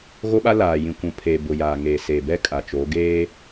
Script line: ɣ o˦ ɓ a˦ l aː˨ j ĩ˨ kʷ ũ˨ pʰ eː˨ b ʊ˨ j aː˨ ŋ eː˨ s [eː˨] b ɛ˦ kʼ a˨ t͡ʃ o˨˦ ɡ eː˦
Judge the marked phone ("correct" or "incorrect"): correct